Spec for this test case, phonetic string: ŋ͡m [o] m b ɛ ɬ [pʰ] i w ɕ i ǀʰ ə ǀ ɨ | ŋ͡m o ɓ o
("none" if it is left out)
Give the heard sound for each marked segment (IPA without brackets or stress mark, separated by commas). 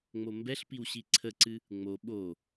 o, p